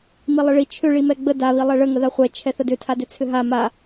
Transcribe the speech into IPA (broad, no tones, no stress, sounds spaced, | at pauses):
m i lˠ ə ɭ i t͡ʃʰ ʏ ɭ i m ɛ ɡ͡b ə d a β i lˠ ɛ ɭ ə ŋ ə ð a χʷ ɛ t͡ʃʰ ɛ θ ə d ʏ tʰ a d ʏ t͡sʰ ʏ ɦ a m a